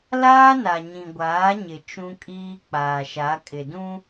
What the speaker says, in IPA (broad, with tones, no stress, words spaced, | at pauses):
laː˦na˨ ɲĩ˨ɡʷaː˨˦ɲɪ˨ t͡ʃũ˦kʼiː˦ k͡paː˨ʃa˨˦kʼɪ˨dũ˦